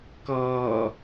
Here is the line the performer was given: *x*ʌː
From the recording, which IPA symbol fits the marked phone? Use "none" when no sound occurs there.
k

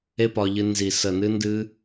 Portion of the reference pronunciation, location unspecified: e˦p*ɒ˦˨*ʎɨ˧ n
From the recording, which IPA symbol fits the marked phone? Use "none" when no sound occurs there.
ɒ˧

